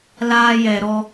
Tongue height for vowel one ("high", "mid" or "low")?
low